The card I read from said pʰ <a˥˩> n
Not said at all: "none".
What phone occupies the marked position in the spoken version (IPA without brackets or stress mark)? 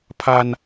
a˧